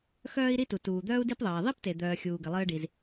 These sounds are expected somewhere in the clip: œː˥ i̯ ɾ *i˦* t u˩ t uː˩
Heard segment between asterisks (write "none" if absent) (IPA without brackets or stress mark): i˥